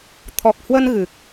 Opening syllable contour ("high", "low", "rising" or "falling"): low